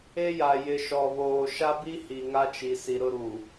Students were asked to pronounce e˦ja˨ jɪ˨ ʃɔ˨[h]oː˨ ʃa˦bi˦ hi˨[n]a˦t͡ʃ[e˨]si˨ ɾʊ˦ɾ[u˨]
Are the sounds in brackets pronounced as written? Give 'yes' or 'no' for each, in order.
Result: no, no, no, yes

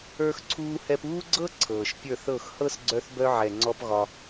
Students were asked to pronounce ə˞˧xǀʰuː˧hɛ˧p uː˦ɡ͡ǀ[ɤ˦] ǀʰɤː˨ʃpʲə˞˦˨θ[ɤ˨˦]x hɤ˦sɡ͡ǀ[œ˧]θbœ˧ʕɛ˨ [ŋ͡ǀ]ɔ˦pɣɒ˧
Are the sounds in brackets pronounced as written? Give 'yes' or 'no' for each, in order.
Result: yes, no, yes, yes

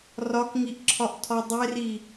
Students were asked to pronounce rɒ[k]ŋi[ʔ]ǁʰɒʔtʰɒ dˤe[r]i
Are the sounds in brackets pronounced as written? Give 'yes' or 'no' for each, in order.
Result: yes, yes, yes

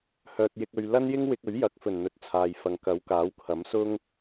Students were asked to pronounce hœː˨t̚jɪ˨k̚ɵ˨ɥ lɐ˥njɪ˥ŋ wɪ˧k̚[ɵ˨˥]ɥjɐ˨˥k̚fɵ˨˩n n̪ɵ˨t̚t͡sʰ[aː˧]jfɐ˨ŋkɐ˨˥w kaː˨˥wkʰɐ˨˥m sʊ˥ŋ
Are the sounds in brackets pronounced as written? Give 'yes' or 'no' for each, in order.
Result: yes, no

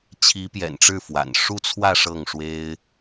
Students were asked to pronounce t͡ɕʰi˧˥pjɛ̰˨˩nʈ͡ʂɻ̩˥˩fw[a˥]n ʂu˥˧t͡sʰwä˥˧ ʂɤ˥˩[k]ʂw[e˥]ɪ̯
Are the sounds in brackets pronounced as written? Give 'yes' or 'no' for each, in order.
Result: no, no, yes

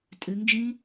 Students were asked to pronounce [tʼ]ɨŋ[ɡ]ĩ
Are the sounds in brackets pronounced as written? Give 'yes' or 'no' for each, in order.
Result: yes, no

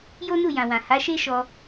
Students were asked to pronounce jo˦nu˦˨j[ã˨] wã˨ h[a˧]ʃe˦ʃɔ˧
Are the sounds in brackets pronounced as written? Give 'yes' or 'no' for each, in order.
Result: yes, no

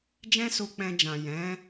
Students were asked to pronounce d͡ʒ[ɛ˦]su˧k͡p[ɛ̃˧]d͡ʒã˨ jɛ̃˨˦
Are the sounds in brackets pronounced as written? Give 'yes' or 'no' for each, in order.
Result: no, yes

